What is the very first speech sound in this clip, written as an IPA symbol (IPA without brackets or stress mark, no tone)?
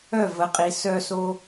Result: œ